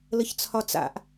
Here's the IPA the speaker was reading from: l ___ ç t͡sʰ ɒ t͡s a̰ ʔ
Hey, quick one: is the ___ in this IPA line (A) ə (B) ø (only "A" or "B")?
A